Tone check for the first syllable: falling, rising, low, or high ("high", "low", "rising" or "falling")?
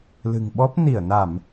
low